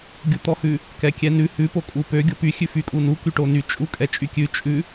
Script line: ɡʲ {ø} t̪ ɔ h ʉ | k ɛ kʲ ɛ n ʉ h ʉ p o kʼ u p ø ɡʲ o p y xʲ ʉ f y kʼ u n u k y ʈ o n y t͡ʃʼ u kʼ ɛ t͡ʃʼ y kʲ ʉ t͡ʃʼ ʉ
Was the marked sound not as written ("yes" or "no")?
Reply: yes